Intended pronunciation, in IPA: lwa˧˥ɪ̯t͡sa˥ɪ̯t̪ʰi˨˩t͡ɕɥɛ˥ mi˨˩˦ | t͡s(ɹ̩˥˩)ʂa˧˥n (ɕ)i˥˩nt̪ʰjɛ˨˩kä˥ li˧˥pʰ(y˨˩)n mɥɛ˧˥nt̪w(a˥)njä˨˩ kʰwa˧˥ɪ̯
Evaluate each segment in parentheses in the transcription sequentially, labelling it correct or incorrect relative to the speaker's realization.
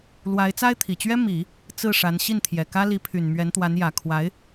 correct, correct, correct, incorrect: a˧˥

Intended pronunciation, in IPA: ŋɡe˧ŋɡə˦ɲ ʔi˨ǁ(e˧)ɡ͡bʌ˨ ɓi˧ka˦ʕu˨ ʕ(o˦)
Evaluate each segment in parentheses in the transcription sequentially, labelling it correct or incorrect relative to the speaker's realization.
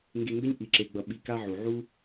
incorrect: e˨, incorrect: u˦

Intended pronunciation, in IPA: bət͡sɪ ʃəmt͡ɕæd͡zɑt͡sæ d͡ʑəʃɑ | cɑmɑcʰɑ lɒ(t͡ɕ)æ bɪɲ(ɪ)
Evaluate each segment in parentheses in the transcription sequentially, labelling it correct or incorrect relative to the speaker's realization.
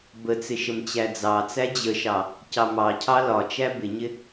incorrect: t͡ʃ, correct

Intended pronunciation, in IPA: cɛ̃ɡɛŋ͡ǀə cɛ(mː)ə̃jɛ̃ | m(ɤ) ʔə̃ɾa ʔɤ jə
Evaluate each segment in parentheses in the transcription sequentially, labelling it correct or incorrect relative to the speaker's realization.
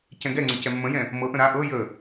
correct, correct

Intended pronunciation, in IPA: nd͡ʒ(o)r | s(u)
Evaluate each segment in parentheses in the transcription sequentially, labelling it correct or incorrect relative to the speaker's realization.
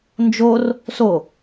correct, incorrect: o

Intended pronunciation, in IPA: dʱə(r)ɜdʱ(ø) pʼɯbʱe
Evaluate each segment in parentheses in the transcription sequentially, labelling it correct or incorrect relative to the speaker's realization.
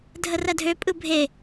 correct, correct

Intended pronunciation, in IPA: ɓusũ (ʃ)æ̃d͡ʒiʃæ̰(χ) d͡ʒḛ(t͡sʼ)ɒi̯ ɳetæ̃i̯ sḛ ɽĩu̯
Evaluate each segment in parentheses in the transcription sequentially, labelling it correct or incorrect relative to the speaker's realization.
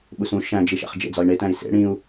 correct, correct, incorrect: d͡z

